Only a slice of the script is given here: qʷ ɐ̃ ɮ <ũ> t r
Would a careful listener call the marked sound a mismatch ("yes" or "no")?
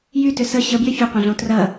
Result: yes